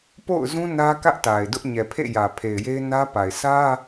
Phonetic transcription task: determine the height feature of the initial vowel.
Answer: mid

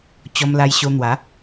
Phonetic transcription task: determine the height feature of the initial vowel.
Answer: mid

